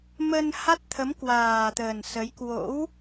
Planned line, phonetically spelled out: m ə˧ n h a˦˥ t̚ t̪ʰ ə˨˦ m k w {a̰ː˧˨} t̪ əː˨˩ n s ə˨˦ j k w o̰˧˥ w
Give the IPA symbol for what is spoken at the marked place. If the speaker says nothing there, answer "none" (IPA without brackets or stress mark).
aː˨˩